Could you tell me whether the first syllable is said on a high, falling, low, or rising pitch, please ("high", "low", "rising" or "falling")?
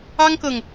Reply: high